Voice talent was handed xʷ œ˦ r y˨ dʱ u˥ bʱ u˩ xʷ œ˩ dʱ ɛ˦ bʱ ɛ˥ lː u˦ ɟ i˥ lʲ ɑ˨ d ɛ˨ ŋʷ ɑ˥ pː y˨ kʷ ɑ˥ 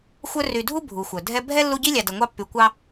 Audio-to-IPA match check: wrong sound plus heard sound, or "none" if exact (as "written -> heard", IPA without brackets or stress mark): none